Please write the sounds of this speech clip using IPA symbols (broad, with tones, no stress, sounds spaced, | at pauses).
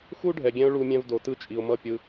x u˦ ɖʱ ɛ˨ ɡʲ ɛ̃˧ ʊ̯ ɭ u˦ mʲ ɛ̃˦ v d o˨ t ɯ˦ t͡ʃʼ i˨ ʊ̯ m ʌ˦˨ pʲ ɯ˧